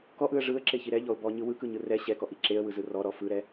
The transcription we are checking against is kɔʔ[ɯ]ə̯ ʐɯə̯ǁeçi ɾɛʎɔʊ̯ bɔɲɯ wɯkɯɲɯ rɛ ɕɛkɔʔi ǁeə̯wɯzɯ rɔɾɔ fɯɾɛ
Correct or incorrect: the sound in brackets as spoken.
correct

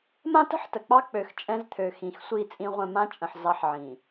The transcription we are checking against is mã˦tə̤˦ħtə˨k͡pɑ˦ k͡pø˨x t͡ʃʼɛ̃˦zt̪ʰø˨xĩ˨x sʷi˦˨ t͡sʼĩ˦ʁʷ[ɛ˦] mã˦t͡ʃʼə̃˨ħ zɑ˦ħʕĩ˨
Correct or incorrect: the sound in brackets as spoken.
incorrect: ɛ̃˦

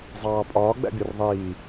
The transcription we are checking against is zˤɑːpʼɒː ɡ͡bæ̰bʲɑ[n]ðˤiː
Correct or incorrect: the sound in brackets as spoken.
incorrect: r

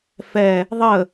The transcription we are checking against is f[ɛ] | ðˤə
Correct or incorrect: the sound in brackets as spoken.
correct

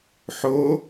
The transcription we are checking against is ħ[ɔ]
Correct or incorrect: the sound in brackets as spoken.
incorrect: o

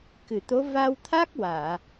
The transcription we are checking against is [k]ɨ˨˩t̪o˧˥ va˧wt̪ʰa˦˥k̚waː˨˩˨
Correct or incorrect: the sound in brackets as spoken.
correct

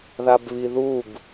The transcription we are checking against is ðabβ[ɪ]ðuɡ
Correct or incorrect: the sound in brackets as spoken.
incorrect: i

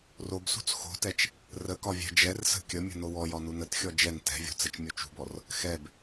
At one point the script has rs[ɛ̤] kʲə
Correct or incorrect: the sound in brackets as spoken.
incorrect: ə̤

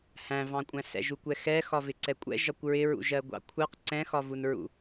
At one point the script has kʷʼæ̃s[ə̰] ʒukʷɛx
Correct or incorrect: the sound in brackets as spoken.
incorrect: ɛ̰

